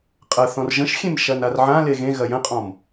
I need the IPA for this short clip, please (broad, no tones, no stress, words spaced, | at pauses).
qʼɐθɔ̃r ʒə̃ʃxʲẽm ʃɐnarʕã leɣẽ ɣɐjə̃qʼɔ̃m